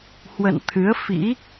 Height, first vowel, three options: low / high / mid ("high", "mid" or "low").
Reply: mid